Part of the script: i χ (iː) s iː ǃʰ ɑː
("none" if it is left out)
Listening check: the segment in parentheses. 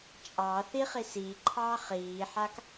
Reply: i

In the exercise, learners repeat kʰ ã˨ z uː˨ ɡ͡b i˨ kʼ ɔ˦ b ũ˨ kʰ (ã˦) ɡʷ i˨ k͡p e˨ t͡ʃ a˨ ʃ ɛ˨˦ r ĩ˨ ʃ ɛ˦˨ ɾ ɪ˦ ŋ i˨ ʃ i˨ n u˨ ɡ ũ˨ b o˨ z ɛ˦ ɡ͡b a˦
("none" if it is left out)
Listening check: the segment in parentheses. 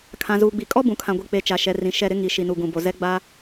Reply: ã˨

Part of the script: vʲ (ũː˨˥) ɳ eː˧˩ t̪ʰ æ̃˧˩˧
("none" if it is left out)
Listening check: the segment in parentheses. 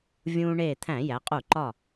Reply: ũː˧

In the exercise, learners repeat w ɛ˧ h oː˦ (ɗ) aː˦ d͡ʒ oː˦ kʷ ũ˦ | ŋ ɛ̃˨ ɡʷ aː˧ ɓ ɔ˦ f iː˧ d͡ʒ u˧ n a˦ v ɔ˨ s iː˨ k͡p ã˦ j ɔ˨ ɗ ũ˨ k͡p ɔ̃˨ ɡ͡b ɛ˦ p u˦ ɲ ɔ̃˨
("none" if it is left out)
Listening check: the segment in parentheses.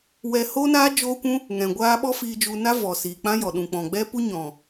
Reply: n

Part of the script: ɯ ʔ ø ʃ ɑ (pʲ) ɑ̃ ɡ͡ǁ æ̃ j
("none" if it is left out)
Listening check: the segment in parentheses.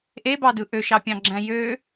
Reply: pʲ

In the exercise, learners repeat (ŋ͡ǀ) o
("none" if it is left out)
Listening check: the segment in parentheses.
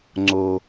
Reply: ŋ͡ǀ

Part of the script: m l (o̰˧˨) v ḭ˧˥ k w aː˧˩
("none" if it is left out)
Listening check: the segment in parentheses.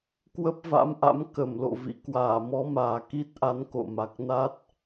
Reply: o̰˧˨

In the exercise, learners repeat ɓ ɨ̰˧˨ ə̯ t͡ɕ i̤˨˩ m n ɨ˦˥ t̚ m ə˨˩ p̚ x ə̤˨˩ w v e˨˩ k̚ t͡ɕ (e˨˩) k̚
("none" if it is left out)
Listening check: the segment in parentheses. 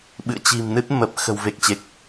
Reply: e˨˩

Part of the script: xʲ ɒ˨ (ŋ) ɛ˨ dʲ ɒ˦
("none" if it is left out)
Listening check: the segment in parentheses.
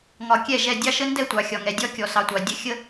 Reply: ŋ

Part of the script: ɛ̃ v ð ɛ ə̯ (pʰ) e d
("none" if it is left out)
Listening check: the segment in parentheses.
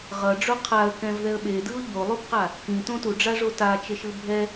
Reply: ɓ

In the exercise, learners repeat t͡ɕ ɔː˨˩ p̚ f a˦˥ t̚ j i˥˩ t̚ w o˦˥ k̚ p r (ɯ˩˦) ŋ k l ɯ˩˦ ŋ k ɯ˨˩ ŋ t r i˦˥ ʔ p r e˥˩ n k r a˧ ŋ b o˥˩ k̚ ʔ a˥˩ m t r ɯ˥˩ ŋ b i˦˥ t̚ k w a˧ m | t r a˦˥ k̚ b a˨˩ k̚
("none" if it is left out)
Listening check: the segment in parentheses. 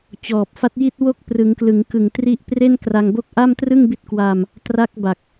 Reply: ɯ˩˦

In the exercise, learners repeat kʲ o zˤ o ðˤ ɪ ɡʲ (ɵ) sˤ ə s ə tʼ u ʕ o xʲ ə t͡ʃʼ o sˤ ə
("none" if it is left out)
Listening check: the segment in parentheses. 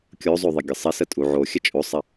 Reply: ə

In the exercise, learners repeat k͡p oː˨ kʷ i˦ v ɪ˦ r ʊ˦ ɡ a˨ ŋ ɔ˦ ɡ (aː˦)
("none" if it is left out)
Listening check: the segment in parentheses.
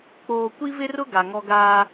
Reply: aː˦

